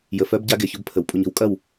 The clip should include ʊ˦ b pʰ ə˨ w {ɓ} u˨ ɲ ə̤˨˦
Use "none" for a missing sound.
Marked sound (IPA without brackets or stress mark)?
pʼ